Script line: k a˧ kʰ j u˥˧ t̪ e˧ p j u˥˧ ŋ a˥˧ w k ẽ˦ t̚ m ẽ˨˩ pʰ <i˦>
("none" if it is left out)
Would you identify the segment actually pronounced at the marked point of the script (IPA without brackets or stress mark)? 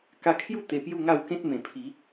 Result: i˨˦